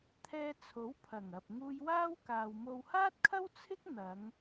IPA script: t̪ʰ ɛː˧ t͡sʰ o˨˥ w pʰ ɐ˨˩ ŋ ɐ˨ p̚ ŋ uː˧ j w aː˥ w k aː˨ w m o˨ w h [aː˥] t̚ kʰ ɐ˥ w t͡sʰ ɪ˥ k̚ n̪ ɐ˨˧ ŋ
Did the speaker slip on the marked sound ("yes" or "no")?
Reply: no